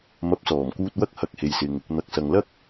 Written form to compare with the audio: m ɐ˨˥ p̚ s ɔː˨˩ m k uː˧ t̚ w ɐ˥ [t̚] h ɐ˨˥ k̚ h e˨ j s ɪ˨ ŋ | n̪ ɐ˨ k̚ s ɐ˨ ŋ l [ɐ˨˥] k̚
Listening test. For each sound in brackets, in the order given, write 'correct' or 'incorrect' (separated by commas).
incorrect, incorrect